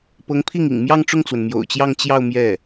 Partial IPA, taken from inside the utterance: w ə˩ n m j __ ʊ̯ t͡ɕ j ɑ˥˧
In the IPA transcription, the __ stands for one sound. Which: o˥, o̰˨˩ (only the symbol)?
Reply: o̰˨˩